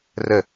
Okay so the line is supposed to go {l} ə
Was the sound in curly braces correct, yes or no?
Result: no